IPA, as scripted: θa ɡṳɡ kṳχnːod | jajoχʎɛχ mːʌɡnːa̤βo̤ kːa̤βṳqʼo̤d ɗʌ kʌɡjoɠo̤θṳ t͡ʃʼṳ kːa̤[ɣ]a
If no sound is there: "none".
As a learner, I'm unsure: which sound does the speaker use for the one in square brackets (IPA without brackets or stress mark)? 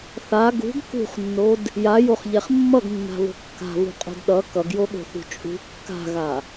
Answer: ɣ